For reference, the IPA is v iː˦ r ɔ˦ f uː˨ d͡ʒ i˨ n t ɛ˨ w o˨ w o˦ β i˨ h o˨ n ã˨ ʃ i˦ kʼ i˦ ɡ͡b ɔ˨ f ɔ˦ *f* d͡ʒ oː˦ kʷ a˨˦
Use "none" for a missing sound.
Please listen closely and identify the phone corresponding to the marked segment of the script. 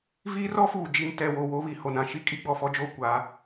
none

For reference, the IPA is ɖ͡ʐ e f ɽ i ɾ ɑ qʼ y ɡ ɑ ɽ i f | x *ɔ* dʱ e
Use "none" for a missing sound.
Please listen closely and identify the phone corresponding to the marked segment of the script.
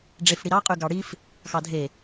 ɑ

